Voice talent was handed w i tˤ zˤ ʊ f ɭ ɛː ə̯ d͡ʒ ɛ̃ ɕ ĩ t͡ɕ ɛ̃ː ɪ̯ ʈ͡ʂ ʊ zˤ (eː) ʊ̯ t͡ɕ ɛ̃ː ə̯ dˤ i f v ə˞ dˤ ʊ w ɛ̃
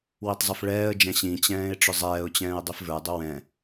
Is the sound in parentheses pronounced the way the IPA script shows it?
no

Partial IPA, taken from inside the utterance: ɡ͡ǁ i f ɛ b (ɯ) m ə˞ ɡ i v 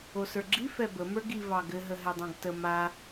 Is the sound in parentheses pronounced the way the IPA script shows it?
no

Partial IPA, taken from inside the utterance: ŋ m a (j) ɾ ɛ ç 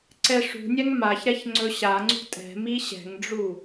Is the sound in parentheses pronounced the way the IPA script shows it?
no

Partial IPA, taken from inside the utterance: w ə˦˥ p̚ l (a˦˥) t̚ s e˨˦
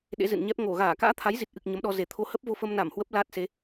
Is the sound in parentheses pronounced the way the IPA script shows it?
no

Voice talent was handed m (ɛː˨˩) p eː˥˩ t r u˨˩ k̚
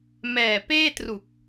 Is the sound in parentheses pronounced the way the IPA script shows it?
yes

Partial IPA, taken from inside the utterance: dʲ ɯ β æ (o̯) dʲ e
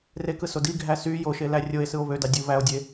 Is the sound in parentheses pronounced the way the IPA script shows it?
yes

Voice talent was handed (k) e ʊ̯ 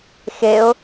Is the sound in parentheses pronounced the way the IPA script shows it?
no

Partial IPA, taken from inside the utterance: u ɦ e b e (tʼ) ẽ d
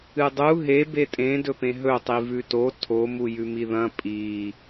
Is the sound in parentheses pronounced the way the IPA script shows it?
yes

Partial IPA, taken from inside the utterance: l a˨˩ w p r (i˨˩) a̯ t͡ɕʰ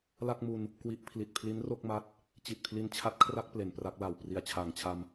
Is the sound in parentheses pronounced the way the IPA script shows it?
yes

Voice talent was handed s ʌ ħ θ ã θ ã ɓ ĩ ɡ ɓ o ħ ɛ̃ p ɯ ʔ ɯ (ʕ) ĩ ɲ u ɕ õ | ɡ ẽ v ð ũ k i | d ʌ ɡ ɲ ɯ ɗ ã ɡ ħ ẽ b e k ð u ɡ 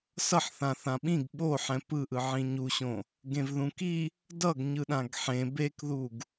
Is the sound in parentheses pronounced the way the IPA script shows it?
yes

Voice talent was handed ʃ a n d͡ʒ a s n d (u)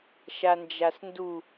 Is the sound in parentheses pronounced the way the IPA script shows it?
yes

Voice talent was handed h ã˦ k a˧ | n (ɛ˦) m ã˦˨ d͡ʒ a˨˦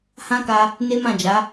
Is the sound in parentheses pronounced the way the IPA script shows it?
no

